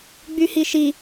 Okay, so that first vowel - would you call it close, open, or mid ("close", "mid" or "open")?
close